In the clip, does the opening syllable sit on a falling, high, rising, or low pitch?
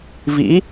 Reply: rising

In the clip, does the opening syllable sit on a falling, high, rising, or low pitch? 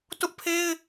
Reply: high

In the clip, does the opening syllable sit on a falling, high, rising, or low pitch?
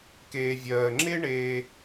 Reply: low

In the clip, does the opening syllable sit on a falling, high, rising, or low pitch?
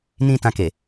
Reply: high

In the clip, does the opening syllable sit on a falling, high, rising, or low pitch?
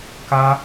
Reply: high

